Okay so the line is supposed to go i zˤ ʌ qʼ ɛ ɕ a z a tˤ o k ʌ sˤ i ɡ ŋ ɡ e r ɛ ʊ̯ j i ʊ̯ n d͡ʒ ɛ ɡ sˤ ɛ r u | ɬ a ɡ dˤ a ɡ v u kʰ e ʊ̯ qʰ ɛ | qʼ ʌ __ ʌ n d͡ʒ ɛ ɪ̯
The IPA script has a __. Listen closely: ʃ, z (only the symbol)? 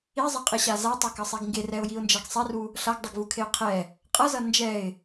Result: z